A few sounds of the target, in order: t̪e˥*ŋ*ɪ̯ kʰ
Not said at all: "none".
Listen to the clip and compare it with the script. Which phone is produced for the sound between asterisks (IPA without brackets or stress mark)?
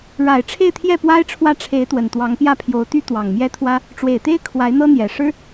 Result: none